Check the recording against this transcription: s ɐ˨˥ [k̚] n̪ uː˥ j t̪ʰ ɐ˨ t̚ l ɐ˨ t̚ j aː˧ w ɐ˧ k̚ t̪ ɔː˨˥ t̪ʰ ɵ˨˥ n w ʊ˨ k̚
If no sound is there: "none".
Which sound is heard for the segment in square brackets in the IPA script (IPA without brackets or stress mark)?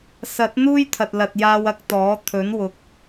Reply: t̚